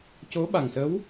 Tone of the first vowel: rising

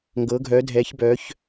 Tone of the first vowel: rising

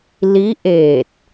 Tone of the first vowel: rising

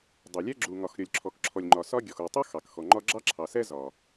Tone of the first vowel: low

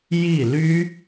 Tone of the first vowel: falling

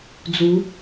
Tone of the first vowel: rising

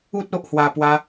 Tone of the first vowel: high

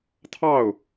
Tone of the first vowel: falling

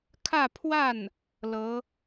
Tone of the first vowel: falling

